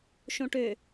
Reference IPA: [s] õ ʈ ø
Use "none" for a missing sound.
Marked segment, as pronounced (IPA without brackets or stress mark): ʃ